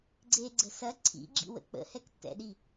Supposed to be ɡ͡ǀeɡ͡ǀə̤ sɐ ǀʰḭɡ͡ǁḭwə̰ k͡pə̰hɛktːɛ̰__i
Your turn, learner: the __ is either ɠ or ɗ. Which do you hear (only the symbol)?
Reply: ɗ